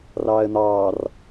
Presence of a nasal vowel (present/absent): absent